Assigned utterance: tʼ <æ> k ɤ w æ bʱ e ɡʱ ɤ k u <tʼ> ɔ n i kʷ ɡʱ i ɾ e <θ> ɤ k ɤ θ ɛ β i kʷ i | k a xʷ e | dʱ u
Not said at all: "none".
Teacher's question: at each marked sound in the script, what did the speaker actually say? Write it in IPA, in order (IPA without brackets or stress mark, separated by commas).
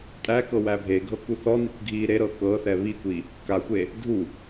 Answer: æ, θ, ɾ